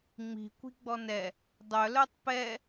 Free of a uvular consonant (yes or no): yes